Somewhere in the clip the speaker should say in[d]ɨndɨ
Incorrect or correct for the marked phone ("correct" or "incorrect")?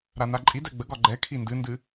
correct